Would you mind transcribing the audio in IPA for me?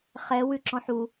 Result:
χɛw ʉǁɔ̃ħu

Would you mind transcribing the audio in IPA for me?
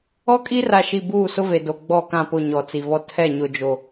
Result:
ɔ˦kʼi˦ra˨ʃi˨ buː˦˨sʊ˦ve˨do˨ ɡ͡bɔ˦˨kã˦˨pʊ˦˨ ɲɔ˨t͡si˨vɔ˦ tʰɛ˦˨ɲʊ˨d͡ʒo˨

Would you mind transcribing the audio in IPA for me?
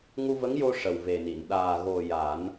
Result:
ŋu˧və˧˥ŋjo˧ ʂə˨˩wve˨˩ni˨˩˨n ɗaː˨˩ɣo˨˩ ja˨˩˦n

